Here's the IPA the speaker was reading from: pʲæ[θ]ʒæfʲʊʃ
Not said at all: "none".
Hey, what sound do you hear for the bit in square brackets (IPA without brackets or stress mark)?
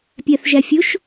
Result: θ